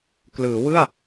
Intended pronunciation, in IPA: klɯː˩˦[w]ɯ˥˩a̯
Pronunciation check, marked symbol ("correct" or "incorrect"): correct